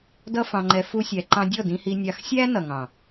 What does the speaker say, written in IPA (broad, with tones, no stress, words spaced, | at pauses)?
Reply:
dʌ˦fɑ̃˧ŋ͡ǃɛ˧ fu˦sʲæ˧ǃɑ̃˦ dʲɔ˦˨dĩ˧hi˧ nʲɑ˧xsʲæː˦ nʌ˨ŋɑ̃˨